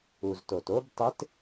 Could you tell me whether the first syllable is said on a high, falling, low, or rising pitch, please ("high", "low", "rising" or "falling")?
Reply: low